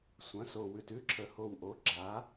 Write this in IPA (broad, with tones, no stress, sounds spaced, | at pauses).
sʷ ɐ̃˩˥ s o˨˩ w ʉ˨˩ t ʉ˦˥ ǁʰ ə˨˩ h o˨˩ w ʔ o˩˥ ɡ͡ǁ a˩˥